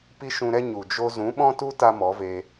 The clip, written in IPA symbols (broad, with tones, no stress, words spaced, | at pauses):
pi˦ʃũ˧ɾɛ˦ ɲu˨d͡ʒo˦ zũ˨˦ɓɔ̃˦tu˦ ta˦mɔ˨˦ve˧